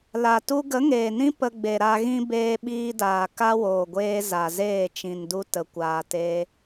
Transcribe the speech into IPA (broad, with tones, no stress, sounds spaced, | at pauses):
l a˨ t u˧ ɡ ə˨˦ ŋ eː˨ n ĩ˦ p ə˧ ɡ͡b e˨ ɾ a˧ ɣ ĩ˦ b eː˧ ɓ iː˧ d aː˨ k a˦ w oː˨ ɡʷ eː˧ z a˨ z eː˦˨ t͡ʃ ĩ˨ n d u˧ t ə˨ kʷ aː˨ t e˧